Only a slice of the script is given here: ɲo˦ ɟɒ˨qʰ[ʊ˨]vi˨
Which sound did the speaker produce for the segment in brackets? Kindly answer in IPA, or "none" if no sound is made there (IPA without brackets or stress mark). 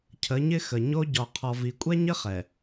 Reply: ɔ˨